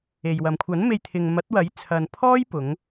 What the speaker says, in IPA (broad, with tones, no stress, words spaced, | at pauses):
e˨jwɐ˨m kʷʰɐ˨˥nme˧jt̪ʰɪ˨ŋ mɐ˨˥t̚wɐ˨˥j t͡sʰɐ˨n pʰɔː˥jpʊ˨˧ŋ